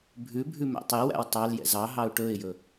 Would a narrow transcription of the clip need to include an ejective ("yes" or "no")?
no